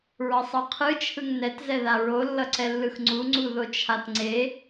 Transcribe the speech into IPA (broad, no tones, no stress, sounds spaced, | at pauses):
ɹ ʌ sˤ ʌ qʰ ɯ t͡ʃʰ ɯ ŋ n ɛ t z ɛ ð a ɹ o lː ʌ ǀ ɛ lː ɯ x ŋ͡ǀ u ŋ͡ǀ u ð o t͡ʃʰ a t ŋ͡ǀ e